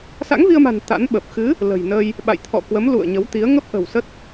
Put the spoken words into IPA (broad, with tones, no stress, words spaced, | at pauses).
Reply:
sa̰˧˥ŋvi˧ə̯ma̤˨˩n t̪a̰˧˥nɓə˨˩p̚ xɨ˨˦ | lə̤˨˩jnə˧j | ɓa̰˧˨j t̪ʰɔ̰˧˨kwə˨˦mlṵ˧˨ə̯ ɲə˨˦wt̪i˨˦ə̯ ŋə˦˥p̚ʔə̤˨˩w sə˦˥t̚